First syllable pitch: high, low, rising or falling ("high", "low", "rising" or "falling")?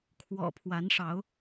low